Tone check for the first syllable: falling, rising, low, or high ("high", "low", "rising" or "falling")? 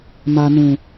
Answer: low